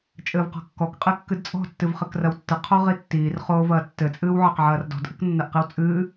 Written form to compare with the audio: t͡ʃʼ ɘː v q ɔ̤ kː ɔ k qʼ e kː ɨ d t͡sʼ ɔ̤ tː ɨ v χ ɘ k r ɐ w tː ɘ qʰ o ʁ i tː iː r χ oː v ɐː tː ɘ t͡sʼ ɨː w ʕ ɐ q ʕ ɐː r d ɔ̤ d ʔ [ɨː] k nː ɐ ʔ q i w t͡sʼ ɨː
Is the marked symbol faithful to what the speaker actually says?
no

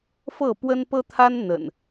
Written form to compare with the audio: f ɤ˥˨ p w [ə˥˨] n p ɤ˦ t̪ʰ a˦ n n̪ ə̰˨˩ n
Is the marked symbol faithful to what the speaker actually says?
no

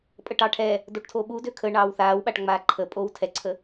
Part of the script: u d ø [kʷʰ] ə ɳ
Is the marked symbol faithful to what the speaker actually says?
no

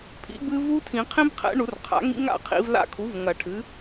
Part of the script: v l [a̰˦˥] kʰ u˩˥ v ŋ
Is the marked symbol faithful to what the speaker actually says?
yes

